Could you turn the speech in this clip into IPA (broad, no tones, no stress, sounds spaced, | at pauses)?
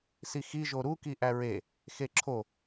s i x i ʒ o ɾ u k i ʔ æ ɹ e | x e ǁʰ o